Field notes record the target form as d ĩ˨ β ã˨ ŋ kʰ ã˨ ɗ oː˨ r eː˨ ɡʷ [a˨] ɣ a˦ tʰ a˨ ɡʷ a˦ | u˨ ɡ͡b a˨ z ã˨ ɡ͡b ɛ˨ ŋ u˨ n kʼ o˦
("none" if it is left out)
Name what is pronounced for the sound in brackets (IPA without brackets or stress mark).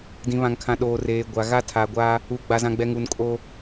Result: a˨